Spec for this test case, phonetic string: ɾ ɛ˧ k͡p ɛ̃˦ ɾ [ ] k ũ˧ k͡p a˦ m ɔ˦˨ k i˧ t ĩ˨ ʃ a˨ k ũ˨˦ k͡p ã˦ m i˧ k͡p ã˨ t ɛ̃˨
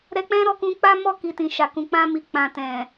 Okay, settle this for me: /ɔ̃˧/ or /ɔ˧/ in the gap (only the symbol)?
ɔ˧